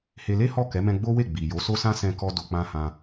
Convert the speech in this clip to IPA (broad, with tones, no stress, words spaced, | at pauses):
he˧le˦hɔ˦˨ kɛ˨˦mɛ̃˧ ɡ͡bo˦we˦˨ ɡ͡bi˨ jo˨˦so˦sã˦ sɛ̃˧kɔ˧ do˨k͡pã˧hã˧